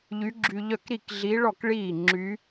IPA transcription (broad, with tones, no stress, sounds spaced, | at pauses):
ʎ y˧˥ ɡ͡ǁ y˧ ʎ œ˥˩ k ɾ i˥˩ k ɮ i˧˥ ɭ ɔ˥˩ k ɭ iː˥˩ ŋ͡ǁ y˧˥